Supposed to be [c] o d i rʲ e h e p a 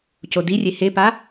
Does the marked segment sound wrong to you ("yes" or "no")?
no